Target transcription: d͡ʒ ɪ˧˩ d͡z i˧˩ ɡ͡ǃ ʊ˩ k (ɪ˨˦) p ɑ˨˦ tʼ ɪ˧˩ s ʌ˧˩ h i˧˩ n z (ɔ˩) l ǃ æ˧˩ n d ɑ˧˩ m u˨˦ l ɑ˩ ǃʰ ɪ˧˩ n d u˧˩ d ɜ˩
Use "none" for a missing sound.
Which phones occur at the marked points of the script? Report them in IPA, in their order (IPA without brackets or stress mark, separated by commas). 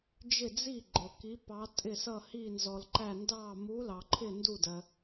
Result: i˨˦, ɔ˩